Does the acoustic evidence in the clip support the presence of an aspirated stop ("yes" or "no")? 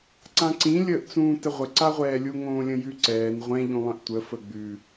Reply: no